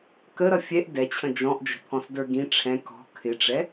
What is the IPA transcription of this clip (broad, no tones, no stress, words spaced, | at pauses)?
kəɾʌ fʲɛʔ dɛt͡ɕʰə̃ d͡ʒɔ̃ʔd͡ʒə̤pʰɔ̃sdə˞ ɡĩ ʈ͡ʂʰɛ̃ kɔ̤ kʰɪʈ͡ʂɛ